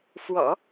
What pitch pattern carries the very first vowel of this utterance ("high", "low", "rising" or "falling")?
low